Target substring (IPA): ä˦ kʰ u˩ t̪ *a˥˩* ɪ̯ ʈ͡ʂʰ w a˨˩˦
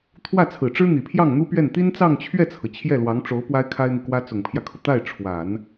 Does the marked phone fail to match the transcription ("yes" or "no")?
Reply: no